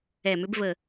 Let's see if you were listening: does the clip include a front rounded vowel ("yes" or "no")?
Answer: yes